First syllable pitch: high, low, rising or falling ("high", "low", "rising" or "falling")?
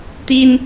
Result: high